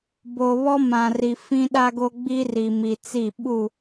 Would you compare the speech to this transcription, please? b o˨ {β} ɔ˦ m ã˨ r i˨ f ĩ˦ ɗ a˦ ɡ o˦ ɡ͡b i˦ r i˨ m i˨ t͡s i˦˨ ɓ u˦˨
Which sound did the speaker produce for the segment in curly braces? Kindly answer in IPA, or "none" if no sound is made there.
β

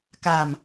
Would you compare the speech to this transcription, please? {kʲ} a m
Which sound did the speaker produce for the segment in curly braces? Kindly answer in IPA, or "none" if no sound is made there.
k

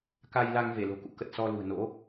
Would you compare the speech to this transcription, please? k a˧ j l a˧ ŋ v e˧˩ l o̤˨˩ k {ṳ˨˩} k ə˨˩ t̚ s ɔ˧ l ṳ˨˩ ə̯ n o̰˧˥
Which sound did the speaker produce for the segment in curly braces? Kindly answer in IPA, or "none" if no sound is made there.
ṵ˧˥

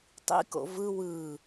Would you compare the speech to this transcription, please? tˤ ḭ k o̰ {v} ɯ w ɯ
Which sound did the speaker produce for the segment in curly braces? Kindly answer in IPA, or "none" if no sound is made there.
v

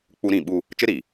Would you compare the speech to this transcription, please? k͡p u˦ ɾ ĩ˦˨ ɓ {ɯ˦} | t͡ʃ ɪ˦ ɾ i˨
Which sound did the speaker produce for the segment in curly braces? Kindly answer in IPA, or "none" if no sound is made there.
u˦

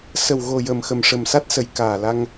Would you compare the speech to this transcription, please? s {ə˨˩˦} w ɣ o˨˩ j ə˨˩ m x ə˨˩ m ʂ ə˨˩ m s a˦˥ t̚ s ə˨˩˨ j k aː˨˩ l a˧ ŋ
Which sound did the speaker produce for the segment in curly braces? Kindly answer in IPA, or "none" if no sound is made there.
ə˨˩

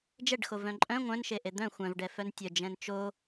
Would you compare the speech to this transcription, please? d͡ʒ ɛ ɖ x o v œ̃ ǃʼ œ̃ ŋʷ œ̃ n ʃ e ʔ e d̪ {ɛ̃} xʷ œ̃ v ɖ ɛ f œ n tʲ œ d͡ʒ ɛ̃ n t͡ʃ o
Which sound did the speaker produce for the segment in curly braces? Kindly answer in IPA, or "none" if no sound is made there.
œ̃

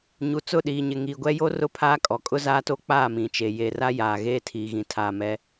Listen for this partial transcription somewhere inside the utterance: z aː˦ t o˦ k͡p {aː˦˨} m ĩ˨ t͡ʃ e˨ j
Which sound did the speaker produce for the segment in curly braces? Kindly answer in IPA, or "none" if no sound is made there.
aː˦˨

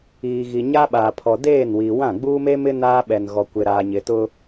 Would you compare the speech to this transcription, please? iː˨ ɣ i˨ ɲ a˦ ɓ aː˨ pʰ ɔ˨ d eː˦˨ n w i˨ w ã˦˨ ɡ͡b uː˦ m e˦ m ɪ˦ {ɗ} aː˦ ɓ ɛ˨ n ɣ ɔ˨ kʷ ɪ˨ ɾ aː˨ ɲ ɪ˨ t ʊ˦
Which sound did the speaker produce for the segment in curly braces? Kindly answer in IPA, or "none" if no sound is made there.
n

